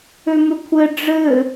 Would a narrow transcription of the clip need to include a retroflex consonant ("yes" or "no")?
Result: yes